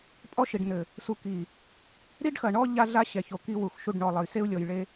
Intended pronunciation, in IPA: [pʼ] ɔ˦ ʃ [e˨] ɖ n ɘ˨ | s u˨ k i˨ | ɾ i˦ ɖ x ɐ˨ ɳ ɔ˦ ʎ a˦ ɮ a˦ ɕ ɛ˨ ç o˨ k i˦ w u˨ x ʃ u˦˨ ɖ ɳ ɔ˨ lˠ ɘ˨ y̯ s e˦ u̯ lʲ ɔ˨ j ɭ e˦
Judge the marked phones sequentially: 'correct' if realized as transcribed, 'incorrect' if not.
correct, incorrect: i˨

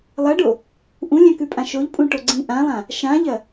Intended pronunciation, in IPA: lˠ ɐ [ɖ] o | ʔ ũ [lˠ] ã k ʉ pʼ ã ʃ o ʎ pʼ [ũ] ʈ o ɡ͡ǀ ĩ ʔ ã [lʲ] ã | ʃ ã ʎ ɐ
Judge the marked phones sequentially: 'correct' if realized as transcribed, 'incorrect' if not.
correct, incorrect: lʲ, correct, incorrect: lˠ

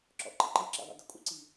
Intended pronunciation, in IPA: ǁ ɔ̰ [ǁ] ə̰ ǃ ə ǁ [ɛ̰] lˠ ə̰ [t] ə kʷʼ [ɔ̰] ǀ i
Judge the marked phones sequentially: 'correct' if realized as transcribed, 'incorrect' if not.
incorrect: ǃ, correct, incorrect: d, incorrect: ə̰

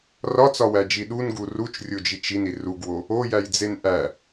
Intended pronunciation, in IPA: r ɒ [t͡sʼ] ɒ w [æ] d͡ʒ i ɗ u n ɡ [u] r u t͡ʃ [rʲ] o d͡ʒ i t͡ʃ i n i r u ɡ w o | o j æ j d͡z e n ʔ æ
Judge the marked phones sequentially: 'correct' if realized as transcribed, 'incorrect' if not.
incorrect: t͡s, correct, correct, correct

